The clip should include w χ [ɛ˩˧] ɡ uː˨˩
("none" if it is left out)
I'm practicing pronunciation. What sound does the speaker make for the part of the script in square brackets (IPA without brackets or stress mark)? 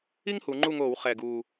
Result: ɛ˨˩